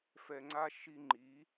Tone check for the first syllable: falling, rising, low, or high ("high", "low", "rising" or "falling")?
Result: low